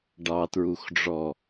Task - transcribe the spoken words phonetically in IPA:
ɖ ɑ t ɹ u x ɖ͡ʐ ɔ

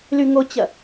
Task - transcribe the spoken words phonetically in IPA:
l y ŋ o t͡ɕ ɐ

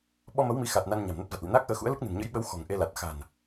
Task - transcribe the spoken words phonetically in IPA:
ɓ ɔ˧ m ə˨˦ w m i˨˦ x a˨˩ t̚ n a˧ n ɲ a̤˨˩ m n ə˦˥ t̚ v a˨˩ t̚ l ḭ˧˨ n aː˦˥ k̚ ʔ əː˨˦ x ṵ˧˥ ə̯ l ɨ˦˥ k̚ n ɨ̤˨˩ n ɲ ə̰˧˥ j ɓ ə˨˦ w x ɔ̤˨˩ ŋ ʔ e˧ l a˨˩ t̚ x a̤˨˩ n

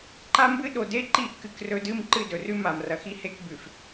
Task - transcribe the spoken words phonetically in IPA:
ǃ a˦ m b ɨ˦ ɗ o˨ d e˦ ǃ i˦˨ ʔ k ɨ˦ k r ɵ˦ d ɨ˦ m ǃ ɨ˦˨ d ɵ˨ r ʉ˦ m a˨ m r ɐ˨ x i˦ h e˦ k b ʉ˨ f

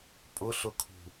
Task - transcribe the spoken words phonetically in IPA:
pʼ ʊ ɬ ʊ kʰ ṳ

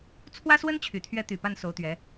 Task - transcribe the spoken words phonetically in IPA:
t͡sʰ w ä˥ s w ə˥ n t͡ɕʰ y˨˩ t̪ʰ ɥ ɛ˧˥ t̪ y˨˩ p a˥˩ n s o˧˥ ʊ̯ t̪ ɥ ɛ˧˥

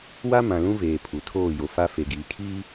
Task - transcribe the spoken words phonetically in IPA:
w a˦ m ã˨ l ũ˦ v eː˨ pʰ u˨ tʰ oː˦˨ j o˨ f a˦ f e˨ ɡ iː˨ kʰ iː˦

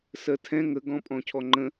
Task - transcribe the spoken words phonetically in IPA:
s ɜ tʰ ɛ̃ ŋ ə ɡ ɔ̃ pʼ ɔ̃ cʰ ɔ ŋ͡ǃ ə̃

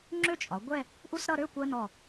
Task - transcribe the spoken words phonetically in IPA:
ŋ͡ǁ ø˥ t͡ʃʼ ɒ˩˧ ɡʷ ɛ˥˧ | ʔ u˥ s ɾ ʌ˥˧ ɾ ø˥˧ kʷ ɜ˧ n ɔ˧˩

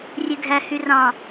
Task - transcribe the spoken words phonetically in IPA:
rʲ e ɡʱ æ h y r ɑ̃

